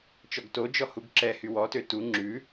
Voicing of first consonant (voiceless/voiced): voiceless